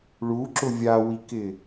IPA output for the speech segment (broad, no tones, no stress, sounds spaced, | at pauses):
ɭ u ǁ ʊ vʲ a w i k ɪ